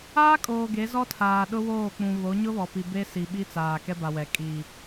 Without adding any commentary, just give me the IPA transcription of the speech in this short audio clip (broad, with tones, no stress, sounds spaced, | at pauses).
aː˦ kʼ oː˨ ɡ e˨˦ z ɔ˦ tʰ aː˨ ɗ ʊ˦ w oː˦˨ k͡p ũ˨ β o˨˦ ɲ ʊ˦ β ɔ˨ p i˨ b e˦ s i˨ ɓ i˦ t͡s aː˨ k ɛ˦ b a˨ w ɛ˨ kʼ iː˨